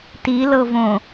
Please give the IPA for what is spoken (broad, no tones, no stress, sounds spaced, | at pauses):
t i l ɤ v õ